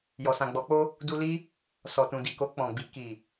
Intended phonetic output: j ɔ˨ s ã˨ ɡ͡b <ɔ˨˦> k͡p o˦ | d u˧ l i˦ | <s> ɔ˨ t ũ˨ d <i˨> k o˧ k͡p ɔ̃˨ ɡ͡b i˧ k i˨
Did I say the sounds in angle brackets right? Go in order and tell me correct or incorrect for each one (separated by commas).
correct, correct, correct